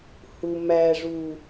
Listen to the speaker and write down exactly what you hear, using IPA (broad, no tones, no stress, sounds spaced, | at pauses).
h u m æ ʐ u